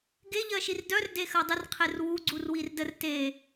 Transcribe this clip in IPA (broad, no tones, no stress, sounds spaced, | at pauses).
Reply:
ɡ e ʎ ɜ ʃ i r d œ r d e x ɜ dˤ ə r qʰ e r w u ɡ͡ǀ u r w i r d ə r t e